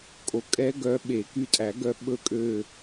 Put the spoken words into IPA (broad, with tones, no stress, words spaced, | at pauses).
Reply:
kʼo˩kʼɛ˦˥ɡœ˨˦ ɓe˨˩˦ky˧˩tʼæ˨˩˦ ɡœ˨˦ ɓɵ˧˩kʼø˧˩